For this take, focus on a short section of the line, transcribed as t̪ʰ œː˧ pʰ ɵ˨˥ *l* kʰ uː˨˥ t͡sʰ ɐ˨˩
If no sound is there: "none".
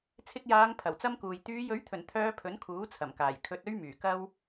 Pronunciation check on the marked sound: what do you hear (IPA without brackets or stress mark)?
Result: n